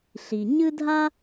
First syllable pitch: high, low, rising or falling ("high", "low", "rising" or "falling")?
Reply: low